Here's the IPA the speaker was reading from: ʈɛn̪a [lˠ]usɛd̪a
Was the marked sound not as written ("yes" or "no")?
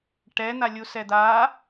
yes